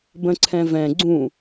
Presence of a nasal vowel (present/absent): present